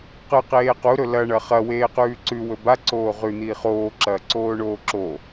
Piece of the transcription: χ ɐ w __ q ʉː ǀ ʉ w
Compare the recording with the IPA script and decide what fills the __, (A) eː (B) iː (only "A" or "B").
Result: A